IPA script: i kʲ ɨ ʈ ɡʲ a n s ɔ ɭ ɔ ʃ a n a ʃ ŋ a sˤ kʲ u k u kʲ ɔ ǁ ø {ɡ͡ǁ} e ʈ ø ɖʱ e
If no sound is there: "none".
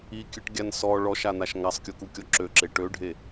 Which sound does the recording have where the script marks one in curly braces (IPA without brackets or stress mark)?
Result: ǁ